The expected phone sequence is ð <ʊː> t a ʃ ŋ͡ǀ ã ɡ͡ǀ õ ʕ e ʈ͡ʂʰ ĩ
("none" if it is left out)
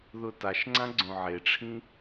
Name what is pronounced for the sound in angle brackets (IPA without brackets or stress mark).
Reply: ʊ